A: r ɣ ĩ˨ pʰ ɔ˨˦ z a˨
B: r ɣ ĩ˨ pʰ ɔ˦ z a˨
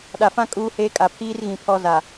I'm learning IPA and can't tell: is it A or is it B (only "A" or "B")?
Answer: B